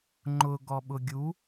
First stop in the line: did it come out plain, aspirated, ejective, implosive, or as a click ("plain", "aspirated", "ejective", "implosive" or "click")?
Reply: click